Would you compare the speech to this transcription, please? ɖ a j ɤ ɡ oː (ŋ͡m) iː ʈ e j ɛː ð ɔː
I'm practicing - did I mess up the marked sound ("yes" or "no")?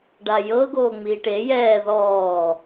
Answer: no